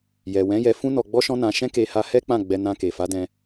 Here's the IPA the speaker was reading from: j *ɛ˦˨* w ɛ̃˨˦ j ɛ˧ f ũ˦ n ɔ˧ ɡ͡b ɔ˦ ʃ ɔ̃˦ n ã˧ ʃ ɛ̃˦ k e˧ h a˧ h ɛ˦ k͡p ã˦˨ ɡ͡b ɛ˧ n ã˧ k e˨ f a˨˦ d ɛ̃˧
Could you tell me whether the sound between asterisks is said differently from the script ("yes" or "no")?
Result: yes